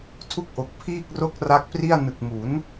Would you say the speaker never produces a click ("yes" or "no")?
yes